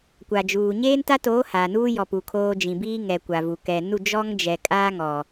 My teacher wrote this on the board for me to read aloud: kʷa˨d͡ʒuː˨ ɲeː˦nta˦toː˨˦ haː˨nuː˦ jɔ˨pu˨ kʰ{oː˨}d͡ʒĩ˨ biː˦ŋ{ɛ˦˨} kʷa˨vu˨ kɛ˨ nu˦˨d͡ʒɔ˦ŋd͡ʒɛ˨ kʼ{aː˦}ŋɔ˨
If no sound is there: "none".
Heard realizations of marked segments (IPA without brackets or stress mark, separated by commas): oː˦, ɛ˨, aː˦